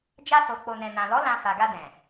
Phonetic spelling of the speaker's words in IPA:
d͡ʒ a˧ s o˨ k͡p o˨ n ɛ̃˨ n ã˨ l ɔ˨˦ l ã˧ f a˨ ɡ a˧ d ɛ̃˨

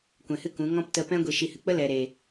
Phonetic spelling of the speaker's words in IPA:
kʷ ɛ̃˨ h ɨ˦ k ũ˨˦ ŋ ɔ̃˦ p t ə˧ p ɛ̃˦ ɡʷ i˨ ʃ i˨ h ɨ˨ k͡p ə˦ l ɛ˨ ɾ eː˨

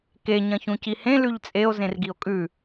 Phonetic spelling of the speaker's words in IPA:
k e ɲ ɐ̃ ç ũ c i h ẽ l ʉ ʎ t͡sʼ e o̯ z ẽ r ɡ i o̯ kʼ ʉ

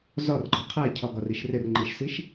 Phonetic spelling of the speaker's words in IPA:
z ɒ r ɡ͡ǃ ɒ qʰ ɛ cʰ ɒ ɡ ɒ r i ʃ r ɪ r ŋ͡ǃ i ʃ s i ʃ

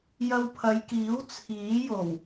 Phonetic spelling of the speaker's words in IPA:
j ɐ˧ w pʰ ɐ˨˧ j k iː˨˥ w t͡sʰ iː˨˥ j o˨˩ w

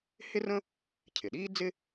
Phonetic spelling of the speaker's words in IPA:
h ɪ˥ r ə̃˥ | cʰ ɪ˩ ɗ iː˥ d͡z ɪ˥

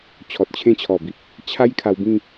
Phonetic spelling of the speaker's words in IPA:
t͡ɕʰ ɔ˨ t̚ t͡ɕʰ ẽ˦ t͡ɕʰ ɔ˨˩ b i˨ p̚ | t͡ɕʰ a˦ j kʰ a˧ w b ĩ˥˧

